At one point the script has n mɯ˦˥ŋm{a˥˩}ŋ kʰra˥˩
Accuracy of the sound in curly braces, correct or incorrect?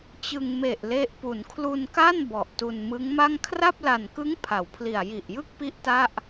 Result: correct